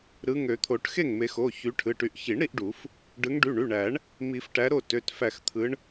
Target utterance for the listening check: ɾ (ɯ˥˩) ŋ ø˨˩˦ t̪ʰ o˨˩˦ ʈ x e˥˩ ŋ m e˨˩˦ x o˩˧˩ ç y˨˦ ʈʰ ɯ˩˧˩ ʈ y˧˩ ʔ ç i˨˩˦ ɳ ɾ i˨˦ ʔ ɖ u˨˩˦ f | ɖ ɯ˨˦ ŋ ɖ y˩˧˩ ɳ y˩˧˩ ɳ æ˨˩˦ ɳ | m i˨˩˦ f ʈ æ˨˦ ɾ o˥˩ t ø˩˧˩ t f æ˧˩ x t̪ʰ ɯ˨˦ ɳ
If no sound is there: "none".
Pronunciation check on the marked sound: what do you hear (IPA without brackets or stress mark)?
ɯ˨˦